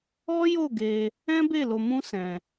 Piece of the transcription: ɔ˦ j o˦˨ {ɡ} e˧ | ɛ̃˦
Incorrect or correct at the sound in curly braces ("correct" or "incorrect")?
correct